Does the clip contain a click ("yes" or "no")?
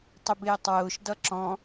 yes